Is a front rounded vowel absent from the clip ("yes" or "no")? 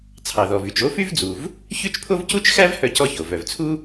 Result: no